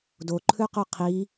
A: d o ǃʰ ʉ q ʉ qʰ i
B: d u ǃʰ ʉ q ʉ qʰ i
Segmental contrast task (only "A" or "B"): A